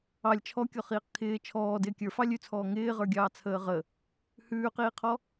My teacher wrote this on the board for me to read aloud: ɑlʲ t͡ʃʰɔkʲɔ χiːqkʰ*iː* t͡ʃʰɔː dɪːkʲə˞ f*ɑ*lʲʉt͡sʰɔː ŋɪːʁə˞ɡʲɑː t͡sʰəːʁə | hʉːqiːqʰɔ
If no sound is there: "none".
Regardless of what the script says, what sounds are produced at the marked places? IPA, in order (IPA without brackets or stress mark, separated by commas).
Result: ɪː, ɑ